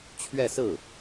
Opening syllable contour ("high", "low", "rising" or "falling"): falling